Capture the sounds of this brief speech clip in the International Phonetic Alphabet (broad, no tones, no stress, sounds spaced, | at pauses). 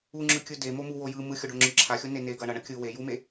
u ŋ͡ǁ ɯ kʲ ɯ d e m o m u w o j ɯ m ɯ xʲ o ɖ o ŋ͡ǁ ɯ ǁʰ a xʲ o n e n e ɡ ʌ ɳ ʌ ɳ ʌ kʲ ɯ w e j u m e